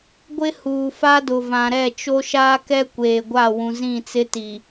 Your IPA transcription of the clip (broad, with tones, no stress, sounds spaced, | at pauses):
ɡʷ ɪ˦ h uː˨ f a˦ d ʊ˨ v ã˨ ɾ ɛ˦˨ t͡ʃ o˦ ʃ aː˦ k ɛ˦ kʷ eː˨ ɡʷ a˦˨ w ũ˨ z ĩ˦˨ t͡s ɪ˦ t i˨